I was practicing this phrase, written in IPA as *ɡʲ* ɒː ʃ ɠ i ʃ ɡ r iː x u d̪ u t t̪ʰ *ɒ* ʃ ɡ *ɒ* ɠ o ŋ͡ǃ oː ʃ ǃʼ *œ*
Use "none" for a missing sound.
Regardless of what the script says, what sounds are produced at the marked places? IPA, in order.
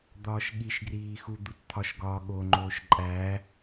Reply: d̪, ɒ, ɒː, æ

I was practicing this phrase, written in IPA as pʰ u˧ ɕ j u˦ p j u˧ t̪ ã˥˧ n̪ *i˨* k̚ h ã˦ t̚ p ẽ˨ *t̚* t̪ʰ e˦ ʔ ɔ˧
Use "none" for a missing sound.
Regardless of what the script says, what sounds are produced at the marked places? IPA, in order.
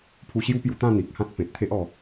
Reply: i˨, t̚

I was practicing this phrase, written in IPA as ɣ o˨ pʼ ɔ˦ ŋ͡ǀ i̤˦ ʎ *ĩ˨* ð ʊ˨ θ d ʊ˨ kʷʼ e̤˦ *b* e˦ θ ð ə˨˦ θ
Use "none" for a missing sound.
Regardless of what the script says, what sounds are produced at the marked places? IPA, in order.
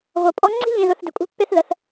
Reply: ĩ˨, pː

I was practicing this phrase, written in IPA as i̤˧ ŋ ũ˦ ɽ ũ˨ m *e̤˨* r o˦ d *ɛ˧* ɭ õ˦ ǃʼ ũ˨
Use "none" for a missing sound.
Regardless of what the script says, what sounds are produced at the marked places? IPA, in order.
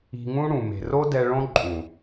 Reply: e̤˨, ɛ˧

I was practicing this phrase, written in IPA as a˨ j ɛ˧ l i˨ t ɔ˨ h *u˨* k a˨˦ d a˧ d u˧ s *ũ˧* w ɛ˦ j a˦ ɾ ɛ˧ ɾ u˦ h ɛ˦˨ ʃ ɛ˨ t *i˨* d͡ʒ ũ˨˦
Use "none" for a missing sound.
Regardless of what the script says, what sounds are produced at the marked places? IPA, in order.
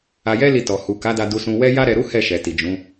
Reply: u˨, ũ˧, i˨

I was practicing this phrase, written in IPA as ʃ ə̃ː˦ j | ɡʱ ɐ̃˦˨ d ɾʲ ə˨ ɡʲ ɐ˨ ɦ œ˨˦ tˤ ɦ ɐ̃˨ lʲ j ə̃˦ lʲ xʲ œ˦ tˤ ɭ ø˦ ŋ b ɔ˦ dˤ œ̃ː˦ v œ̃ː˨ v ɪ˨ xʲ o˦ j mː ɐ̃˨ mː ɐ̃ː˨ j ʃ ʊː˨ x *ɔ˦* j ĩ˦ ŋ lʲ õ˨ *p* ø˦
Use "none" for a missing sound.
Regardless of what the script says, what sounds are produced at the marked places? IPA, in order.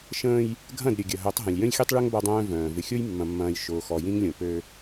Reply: ɔ˨, p

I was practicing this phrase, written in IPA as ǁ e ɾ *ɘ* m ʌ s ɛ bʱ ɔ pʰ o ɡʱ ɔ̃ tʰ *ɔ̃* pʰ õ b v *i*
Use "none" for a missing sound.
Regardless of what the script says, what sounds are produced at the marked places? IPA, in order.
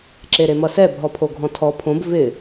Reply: e, ɔ, ɪ

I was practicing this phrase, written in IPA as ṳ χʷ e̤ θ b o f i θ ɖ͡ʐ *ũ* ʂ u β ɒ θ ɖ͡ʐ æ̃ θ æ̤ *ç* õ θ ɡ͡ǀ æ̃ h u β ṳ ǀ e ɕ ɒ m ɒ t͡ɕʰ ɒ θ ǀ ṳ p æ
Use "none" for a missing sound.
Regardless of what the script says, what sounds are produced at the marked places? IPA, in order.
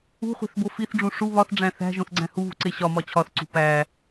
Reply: ũ, ʒ

